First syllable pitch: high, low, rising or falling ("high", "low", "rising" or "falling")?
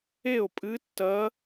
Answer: falling